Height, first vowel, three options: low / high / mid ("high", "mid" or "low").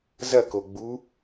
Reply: low